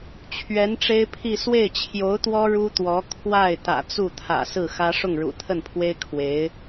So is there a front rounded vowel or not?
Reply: no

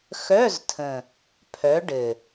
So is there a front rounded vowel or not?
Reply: yes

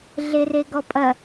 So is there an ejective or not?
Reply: yes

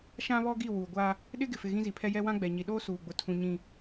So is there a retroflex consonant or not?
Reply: no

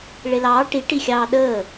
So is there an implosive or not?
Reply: yes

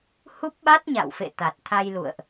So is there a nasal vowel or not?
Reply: no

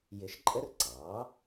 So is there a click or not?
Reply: yes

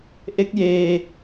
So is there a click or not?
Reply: no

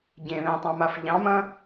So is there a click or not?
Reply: no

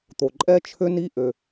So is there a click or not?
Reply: yes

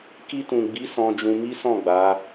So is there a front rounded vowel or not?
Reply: no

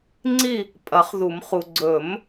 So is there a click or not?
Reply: yes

